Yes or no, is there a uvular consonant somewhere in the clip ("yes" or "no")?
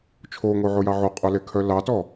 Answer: yes